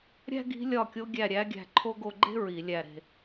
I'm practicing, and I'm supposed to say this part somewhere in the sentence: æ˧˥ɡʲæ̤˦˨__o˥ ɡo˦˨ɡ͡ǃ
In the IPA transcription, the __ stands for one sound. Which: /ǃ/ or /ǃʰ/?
ǃʰ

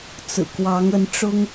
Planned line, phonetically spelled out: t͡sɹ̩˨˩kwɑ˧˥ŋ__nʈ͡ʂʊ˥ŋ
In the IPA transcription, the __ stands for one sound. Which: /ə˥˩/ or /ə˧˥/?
ə˧˥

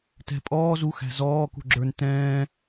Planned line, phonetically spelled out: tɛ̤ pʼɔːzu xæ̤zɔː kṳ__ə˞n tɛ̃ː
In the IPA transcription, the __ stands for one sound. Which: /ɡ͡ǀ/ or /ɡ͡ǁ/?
ɡ͡ǁ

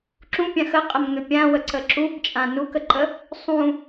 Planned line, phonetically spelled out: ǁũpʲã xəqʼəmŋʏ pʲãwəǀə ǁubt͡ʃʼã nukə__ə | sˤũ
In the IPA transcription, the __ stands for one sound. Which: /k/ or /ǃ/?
ǃ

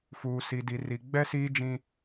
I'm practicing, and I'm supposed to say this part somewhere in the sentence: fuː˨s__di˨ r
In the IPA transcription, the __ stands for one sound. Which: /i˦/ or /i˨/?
i˨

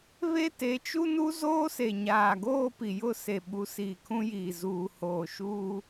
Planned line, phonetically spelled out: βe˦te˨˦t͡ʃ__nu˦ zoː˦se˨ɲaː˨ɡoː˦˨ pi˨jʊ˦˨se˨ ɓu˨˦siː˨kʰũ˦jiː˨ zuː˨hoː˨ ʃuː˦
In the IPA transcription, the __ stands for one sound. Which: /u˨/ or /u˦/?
u˦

